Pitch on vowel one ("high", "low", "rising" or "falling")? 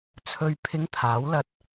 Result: low